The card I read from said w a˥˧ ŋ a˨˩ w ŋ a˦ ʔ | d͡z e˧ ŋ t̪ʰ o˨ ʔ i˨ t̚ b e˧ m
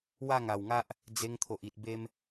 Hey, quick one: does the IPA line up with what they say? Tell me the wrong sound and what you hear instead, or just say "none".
none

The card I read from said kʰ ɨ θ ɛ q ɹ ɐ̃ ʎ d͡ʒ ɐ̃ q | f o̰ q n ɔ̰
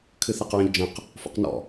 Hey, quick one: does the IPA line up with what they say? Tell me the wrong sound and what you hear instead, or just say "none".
none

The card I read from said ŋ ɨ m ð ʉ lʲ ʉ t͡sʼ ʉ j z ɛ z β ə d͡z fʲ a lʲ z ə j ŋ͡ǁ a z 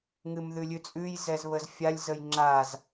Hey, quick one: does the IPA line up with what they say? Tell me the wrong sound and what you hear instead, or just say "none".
d͡z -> z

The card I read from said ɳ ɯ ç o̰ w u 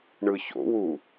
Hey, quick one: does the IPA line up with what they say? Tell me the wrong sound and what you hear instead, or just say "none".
none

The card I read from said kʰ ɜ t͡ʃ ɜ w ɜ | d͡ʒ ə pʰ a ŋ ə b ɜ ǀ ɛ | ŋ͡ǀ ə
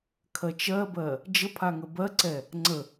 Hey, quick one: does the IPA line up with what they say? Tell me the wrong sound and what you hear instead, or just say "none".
w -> b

